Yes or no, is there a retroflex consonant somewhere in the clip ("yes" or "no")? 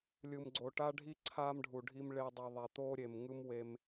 yes